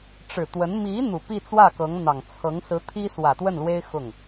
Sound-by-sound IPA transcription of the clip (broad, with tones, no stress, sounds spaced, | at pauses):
ʈ͡ʂ ɻ̩˨˩ t̪ w ə˧˥ n m i˧˥ n̪ u˨˩ p i˥˧ t͡s w ä˥˩ k ɤ˧˥ ŋ n̪ ɑ˨˩ ŋ t͡sʰ ɤ˧˥ ŋ s ɹ̩˧˥ t̪ʰ i˥ s w ä˨˩ t̪ w ə˥˩ n l w e˥ ɪ̯ x ʊ˥˩ ŋ